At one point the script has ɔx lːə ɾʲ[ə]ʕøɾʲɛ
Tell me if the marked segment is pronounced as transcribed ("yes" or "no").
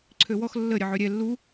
yes